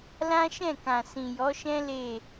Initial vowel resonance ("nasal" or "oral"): nasal